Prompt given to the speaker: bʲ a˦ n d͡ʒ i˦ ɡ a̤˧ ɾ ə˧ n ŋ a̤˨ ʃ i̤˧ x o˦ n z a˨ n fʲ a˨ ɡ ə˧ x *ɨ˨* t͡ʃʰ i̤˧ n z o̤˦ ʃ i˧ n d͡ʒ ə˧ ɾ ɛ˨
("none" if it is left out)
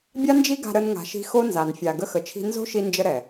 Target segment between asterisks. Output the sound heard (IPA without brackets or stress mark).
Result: ə˨